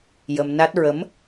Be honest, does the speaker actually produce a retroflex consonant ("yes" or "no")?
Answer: no